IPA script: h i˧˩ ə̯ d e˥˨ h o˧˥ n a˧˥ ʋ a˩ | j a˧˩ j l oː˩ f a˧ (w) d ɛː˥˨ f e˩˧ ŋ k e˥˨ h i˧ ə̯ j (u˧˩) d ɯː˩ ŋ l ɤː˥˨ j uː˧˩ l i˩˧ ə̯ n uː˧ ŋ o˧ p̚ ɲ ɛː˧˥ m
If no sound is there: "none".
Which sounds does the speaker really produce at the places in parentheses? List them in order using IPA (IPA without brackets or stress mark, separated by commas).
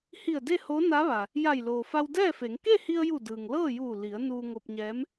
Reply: w, u˧˩